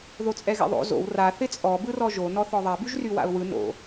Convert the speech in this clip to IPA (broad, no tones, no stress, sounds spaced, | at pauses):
ð o t͡sʼ ɛ ɣ ɛ̰ ðˤ o̰ z o̰ w r a θ ɪ t͡sʼ ɔ b ɯ r ɔ ʒ o n ɔ θ ɔ ðˤ a b y ʒ r y w a̰ ʊ̯ w ɯ n o̰